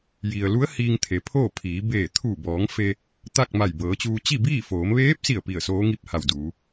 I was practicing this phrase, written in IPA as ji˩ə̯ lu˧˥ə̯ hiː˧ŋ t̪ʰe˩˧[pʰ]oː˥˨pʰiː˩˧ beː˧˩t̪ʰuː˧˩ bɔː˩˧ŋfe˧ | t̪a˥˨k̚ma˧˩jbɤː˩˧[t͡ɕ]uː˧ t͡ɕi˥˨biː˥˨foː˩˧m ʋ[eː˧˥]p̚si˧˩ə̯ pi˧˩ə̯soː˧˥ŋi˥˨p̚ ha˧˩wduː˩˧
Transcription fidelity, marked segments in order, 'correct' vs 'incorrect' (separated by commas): correct, correct, correct